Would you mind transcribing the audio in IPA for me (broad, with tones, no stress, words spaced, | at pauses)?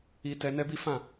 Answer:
i˧tɛ˧ nɛ˦bi˦fã˦˨